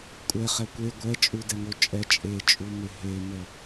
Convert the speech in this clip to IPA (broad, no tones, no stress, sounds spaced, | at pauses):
kʷʼ ɛ χ ɛ kʷ e ɡʷ ɛ t͡ʃʼ u d ɛ ŋ o t͡ʃʼ ɛ t͡ʃʼ e t͡ʃʼ u m e ɦ e m ə